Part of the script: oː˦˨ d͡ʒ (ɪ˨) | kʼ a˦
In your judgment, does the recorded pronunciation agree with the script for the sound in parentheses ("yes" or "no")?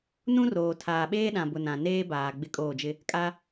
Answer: no